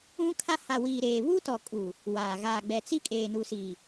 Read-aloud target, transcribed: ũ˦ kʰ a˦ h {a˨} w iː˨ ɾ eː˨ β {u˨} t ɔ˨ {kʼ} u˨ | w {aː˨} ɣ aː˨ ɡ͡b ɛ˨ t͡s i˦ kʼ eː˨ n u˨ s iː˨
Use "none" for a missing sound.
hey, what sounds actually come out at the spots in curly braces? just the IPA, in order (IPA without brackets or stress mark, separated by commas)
a˨, u˦, kʼ, aː˨